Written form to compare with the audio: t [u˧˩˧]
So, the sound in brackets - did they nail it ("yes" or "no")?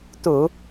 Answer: yes